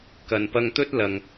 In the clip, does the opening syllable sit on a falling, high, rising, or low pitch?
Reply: low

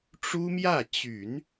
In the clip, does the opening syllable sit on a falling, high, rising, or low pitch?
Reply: high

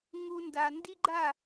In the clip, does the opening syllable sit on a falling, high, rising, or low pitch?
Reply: high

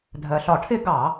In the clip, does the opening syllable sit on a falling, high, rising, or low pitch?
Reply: low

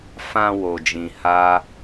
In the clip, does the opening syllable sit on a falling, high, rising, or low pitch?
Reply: low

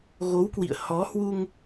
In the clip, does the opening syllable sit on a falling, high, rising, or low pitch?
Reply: rising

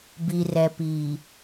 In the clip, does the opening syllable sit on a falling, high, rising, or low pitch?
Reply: low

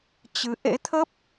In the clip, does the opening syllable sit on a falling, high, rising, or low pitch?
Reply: rising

